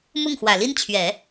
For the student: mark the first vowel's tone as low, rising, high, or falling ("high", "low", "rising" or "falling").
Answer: falling